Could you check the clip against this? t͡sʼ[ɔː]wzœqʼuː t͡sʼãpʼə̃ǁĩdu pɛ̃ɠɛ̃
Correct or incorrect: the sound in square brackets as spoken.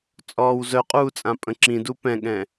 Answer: correct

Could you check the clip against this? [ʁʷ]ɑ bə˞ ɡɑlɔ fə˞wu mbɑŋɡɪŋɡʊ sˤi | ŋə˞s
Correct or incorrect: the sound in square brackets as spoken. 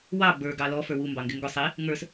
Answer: incorrect: w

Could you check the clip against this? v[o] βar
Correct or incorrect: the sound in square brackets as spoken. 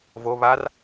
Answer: correct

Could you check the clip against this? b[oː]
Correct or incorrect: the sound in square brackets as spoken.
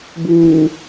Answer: incorrect: uː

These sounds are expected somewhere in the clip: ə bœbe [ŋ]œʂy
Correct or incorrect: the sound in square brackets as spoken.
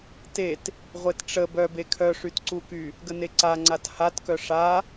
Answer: incorrect: kʰ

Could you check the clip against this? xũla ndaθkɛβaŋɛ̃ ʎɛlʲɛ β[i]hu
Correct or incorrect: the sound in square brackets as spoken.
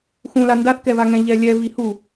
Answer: correct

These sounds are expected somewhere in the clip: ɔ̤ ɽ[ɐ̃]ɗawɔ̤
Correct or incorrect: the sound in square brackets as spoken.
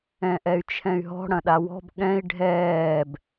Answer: correct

